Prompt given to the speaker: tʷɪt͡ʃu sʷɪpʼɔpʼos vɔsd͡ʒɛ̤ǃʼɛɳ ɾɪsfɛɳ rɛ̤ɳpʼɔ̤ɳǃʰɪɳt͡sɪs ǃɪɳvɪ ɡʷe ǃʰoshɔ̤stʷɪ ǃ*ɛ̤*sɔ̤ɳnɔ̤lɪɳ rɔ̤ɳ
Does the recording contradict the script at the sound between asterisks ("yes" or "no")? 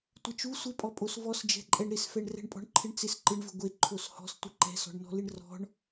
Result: no